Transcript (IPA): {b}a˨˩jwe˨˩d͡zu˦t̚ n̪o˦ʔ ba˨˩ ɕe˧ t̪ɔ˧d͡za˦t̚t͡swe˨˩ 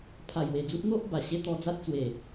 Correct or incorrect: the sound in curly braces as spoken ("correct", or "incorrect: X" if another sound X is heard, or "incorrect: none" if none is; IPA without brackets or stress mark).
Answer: incorrect: pʰ